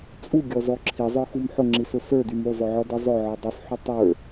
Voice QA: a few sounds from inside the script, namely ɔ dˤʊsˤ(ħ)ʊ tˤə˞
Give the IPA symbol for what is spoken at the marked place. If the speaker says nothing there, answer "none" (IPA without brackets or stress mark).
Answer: ħ